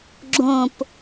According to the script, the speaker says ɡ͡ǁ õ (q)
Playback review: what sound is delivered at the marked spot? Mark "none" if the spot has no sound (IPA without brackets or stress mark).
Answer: p